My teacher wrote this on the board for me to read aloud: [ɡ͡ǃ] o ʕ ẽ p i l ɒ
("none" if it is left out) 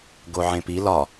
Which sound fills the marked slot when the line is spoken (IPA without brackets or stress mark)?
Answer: ɡ